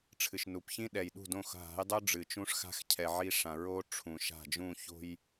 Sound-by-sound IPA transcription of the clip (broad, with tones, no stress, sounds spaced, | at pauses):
ʈ͡ʂʰ ɨ˨ ʃ n u˨ p ç ĩ˦ ɗ ɛ˨ j ɗ ṳ˦˨ d õ˦˨ x ɦ a̤˨˦ j dˤ o˦ ɖ͡ʐ ɨ˨ t͡ʃ ũ˦ ʂ x a̤˦ x cʰ ɛ˨ ʕ i˦ ʂ ã˨ ɹ o˦ ʈ͡ʂʰ ũ˨ ʃ a̤˦˨ d͡ʒ ũ˦˨ ç o̤˦ j